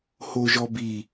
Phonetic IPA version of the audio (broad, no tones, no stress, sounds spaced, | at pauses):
h o ʒ ɔ b i